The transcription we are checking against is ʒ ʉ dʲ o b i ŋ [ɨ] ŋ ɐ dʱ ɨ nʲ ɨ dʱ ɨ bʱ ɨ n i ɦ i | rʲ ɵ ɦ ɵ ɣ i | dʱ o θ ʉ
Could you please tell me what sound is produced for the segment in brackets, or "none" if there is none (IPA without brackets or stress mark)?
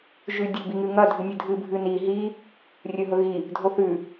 ɨ